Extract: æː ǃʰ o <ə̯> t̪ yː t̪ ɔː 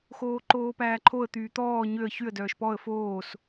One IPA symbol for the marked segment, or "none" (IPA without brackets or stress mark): ə̯